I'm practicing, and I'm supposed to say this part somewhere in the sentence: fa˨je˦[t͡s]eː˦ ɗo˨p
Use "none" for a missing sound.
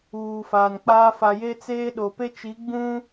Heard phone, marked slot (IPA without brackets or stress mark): t͡s